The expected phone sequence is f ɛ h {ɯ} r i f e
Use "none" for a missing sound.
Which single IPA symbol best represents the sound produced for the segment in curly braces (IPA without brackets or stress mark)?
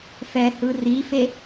ɯ